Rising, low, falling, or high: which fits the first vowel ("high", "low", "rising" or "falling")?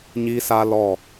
high